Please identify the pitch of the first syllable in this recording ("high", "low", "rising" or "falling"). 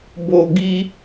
low